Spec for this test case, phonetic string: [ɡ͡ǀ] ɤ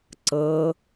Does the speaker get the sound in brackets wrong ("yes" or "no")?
yes